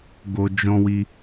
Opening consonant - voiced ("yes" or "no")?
yes